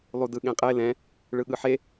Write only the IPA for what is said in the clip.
lˠudɯɠẽqʼe lɛ̃ | ɭɯɠɯħe

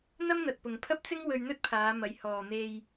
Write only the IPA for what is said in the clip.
n̪ɐ˥mn̪ɐ˨t̚pʊ˨ŋ pʰɐ˥p̚t͡sɪ˥ŋ wɵ˧ɥn̪ɵ˥t̚pʰaː˨˧ mɐ˨˧jhɔː˨ n̪e˨j

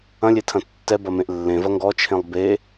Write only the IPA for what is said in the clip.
ɐ̃lʲetʰɐ̃ tːɛbɐmẽʔ lːẽvɐ ŋɡɔt͡ʃʰẽlˠ be

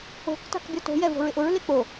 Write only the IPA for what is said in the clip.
o̤k ta̤kbʲɔto̤jɛ vo̤ɹɪʔʊɹle k͡po

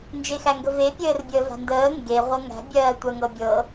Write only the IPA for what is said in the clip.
nd͡ʒexæŋɡəve pʲɘːrbʲəːva̤ndəː ŋɡe ʁʷɤŋæ̤ bʲɜːtʷɜŋɤbʲɤ

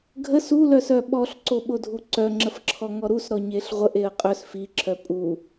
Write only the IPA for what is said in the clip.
ɡʱəs ulœsœ ɓɔɬǀoɓodʱu ǀœŋ͡ǁəfǁʰɔŋɔ ɾusɾɔ ɲeɬʁʷəʔ eə̯qʼœs fiǁʰœ pʼu

